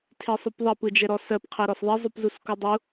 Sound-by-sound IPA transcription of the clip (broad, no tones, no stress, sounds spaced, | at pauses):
tʰ e sˤ u p ðˤ ɐ p ɯ d͡ʒ ɛ ɾ ɔ s ɜ p qʰ ɜ ɾ ɔ s ðˤ ɛ zˤ u p z u s k u dˤ u